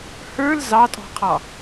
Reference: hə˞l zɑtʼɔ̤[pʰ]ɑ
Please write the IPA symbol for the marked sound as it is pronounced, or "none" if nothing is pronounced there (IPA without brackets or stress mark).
qʰ